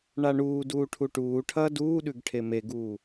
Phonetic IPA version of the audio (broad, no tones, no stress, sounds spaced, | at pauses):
ɳ a ɳ uː d uː ʈʰ u ʈ uː ʈʰ ɐː d uː ɗ ʉ ɡ ʈʰ e m e ɡ uː